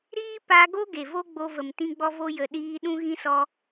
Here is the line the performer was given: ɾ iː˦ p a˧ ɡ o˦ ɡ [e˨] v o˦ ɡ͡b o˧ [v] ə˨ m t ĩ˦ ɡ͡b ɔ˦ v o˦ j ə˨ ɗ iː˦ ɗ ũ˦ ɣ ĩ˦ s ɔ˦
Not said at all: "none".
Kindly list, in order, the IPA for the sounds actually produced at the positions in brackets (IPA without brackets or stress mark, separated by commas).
e˨, v